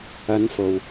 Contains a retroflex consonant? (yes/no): no